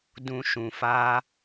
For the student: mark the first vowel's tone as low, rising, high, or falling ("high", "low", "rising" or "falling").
low